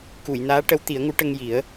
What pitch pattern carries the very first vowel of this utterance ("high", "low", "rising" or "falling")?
low